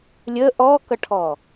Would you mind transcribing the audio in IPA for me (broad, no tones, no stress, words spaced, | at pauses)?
lʲə ʔɔkʌʈʰɔ